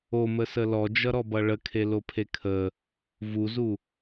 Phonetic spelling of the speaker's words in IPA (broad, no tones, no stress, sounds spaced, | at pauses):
o m ə s ə l ɔ d͡ʒ ʌ ɾ ɔ b ʌ ɭ ə kʰ e l o pʰ e kʰ ə | v u z u